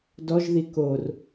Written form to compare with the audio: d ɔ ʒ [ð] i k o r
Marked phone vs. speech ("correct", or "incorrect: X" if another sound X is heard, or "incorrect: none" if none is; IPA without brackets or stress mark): correct